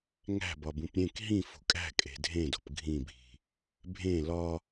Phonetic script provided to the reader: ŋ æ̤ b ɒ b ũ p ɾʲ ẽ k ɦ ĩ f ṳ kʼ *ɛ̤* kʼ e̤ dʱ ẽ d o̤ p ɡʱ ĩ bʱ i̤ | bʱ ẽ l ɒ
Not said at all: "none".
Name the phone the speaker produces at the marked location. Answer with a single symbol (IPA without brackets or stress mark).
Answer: æ̤